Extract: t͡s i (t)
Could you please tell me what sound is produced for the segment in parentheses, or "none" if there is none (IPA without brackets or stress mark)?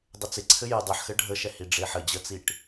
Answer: ʈ